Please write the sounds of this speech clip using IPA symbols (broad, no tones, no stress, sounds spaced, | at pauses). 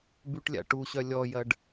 b y ʈ lʲ a̰ ʈ u ɕ œ lʲ ɔ j ɐ ɖ